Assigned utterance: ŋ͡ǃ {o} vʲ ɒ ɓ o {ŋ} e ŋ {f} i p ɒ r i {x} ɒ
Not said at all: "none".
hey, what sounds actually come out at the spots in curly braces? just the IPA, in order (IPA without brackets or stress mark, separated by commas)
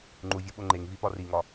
u, ŋ͡ǃ, v, ŋ